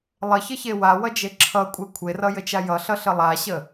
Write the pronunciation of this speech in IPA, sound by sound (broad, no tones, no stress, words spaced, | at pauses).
lˠəçəçe wawʌd͡ʒe ǁʰʌkʷʼe kʷʰerʌjət͡ʃa jʌɬʌɬə lˠaɕə